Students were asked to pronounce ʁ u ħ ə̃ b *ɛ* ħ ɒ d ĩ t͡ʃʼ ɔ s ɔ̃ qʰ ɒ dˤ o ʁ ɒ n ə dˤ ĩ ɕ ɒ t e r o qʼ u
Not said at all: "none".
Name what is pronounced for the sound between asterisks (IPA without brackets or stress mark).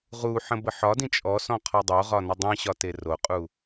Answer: ə